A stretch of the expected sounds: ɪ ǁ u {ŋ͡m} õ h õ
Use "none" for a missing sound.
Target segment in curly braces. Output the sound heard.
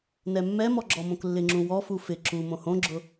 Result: m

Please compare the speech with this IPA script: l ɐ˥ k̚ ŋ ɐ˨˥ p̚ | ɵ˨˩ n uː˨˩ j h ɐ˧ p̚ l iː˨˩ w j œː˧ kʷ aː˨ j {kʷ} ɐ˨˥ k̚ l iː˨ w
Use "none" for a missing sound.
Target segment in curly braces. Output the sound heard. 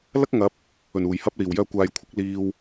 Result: kʷʰ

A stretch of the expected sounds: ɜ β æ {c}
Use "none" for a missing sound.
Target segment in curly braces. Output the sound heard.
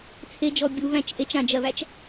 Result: t͡ʃ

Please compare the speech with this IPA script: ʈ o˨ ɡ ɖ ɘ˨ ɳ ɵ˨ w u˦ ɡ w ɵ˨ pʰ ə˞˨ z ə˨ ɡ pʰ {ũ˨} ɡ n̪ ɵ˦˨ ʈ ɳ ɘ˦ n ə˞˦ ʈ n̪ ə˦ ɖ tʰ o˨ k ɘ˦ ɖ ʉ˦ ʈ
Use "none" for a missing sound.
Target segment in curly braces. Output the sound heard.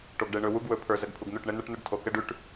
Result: u˨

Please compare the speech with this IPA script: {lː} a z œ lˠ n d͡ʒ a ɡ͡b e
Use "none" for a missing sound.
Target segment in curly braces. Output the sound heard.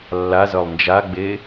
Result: lː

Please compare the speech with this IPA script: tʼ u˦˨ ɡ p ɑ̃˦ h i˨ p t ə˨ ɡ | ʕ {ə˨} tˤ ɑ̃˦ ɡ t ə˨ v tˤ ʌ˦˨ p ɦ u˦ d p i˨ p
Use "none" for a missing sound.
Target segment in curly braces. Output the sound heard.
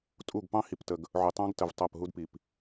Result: ʊ˨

